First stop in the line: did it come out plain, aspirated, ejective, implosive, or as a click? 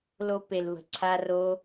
plain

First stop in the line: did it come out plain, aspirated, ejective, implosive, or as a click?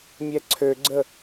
click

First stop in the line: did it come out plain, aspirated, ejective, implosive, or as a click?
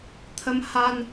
aspirated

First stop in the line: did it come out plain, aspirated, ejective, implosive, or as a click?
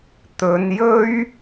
plain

